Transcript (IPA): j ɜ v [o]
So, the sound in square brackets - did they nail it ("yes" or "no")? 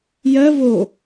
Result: yes